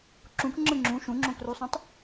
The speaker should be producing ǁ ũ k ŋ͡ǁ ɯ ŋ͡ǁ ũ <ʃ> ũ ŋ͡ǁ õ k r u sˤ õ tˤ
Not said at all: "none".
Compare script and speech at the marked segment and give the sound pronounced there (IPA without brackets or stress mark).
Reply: ʃ